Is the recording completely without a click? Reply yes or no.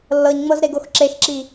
no